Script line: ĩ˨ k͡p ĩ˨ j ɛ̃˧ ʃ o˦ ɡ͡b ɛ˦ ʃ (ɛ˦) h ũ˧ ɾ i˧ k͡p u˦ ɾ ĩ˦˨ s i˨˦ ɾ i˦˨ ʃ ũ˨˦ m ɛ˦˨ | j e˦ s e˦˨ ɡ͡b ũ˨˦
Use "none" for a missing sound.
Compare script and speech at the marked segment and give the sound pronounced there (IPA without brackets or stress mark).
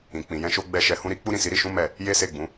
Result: ɛ˧